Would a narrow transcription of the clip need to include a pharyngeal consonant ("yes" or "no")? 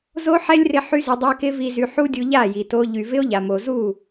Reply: yes